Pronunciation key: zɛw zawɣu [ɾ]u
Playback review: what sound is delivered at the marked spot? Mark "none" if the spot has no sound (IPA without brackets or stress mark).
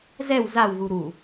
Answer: ɾ